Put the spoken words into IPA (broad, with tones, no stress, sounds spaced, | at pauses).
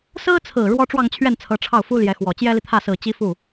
s ɹ̩˥ t͡sʰ ɹ̩˨˩ ɻ w ɔ˥ ʈ͡ʂ w ɑ˥˧ ŋ t͡ɕʰ ɥ ɛ˥˩ n t͡sʰ ɤ˧˥ ʈ͡ʂʰ ɑ˥˩ ʊ̯ f u˥ l j ɛ˧˥ x w ɔ˨˩ t͡ɕ j ɛ˥ l i˨ t̪ʰ ä˥˩ s ɹ̩˨˩ t͡ɕ i˥ f u˥˩